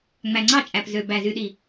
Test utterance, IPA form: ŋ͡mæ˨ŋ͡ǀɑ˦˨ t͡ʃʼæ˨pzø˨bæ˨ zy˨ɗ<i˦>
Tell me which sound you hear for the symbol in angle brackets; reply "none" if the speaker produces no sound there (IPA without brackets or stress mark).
i˨